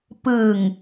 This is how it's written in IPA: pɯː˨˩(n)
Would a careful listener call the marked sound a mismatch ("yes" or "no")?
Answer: yes